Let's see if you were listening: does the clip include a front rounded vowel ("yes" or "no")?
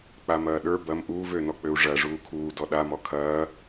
yes